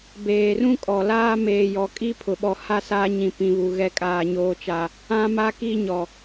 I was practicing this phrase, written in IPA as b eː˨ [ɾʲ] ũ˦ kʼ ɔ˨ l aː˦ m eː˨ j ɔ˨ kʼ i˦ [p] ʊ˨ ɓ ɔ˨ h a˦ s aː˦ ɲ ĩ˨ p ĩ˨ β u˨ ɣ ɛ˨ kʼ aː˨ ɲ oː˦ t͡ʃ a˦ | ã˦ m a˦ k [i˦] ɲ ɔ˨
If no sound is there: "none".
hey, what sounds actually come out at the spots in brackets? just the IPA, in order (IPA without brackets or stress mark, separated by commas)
r, pʰ, i˦